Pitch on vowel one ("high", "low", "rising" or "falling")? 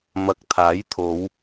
low